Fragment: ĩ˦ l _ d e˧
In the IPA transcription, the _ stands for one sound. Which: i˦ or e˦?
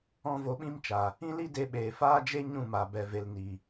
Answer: i˦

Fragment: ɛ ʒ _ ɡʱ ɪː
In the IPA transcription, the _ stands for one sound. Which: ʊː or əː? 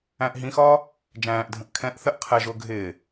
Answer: ʊː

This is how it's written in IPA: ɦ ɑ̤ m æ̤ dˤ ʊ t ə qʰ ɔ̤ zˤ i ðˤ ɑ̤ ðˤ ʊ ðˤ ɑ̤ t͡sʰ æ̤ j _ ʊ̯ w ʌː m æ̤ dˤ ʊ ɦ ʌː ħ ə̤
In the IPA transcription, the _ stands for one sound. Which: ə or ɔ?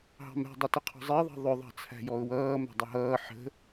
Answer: ɔ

